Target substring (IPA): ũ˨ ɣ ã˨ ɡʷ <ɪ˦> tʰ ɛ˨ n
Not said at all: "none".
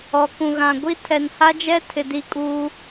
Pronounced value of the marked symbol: i˦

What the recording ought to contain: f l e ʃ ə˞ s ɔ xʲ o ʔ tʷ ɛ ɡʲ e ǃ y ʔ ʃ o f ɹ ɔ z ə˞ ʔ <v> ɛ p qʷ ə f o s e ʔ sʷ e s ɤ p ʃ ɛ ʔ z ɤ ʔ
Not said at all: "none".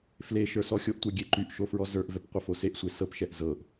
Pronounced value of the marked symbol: v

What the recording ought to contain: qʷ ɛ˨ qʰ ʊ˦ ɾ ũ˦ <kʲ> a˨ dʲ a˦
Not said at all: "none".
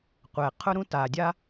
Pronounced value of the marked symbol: t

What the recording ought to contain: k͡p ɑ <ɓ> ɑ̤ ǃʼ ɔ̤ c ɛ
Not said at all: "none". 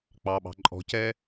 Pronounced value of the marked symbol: ɓ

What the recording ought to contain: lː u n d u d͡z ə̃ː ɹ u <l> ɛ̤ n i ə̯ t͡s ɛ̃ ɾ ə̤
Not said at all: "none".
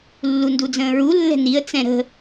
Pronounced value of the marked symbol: lː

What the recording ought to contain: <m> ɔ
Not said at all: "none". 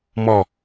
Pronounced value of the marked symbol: m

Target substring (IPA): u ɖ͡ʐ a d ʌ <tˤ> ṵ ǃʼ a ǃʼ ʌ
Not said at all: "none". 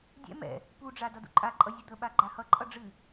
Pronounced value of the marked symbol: d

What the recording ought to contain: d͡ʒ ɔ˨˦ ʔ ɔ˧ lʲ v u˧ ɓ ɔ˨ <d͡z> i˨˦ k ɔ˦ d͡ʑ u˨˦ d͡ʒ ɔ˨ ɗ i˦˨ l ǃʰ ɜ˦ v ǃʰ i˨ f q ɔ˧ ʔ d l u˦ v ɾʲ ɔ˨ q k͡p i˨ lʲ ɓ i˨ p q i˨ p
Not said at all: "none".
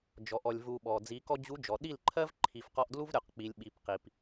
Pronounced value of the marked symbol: d͡z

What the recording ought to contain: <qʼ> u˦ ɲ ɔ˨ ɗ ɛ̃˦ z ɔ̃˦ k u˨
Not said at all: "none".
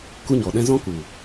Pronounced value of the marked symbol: k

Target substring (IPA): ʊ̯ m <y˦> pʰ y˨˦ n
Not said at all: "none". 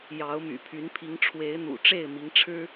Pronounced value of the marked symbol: y̰˨˩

